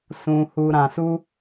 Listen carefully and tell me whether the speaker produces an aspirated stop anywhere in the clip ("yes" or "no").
no